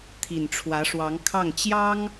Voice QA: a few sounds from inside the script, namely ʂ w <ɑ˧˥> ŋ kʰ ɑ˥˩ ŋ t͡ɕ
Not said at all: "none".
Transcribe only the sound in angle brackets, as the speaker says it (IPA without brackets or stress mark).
ɑ˧˥